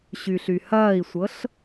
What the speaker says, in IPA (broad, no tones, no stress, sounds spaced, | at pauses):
ɕ y ɬ y h ɐː i̯ sʷ ɤ ɬ